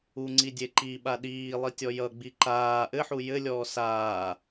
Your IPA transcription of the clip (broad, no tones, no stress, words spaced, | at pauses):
uŋ͡ǀi dʲeǃi ɓaɗiː lˠitʲɔjʌ ɡ͡biǃaː ʔɘħu jɘlʲɔː saː